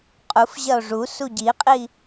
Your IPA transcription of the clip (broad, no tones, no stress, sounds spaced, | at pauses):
qʼ u f ʑ ɐ o̯ ʐ u s u ɟ i qʼ i